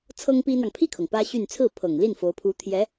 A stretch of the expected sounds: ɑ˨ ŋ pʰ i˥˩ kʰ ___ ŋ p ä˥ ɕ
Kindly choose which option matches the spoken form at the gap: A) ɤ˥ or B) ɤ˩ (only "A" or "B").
B